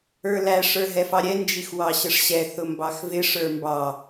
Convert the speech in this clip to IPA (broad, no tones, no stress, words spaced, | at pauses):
ə˞læʂ ə˞ɦɛfɑɾʲɛ nd͡ʒixwɑɕəʂɕɛ θʊmbɑxvɪ ʂə˞mbɑ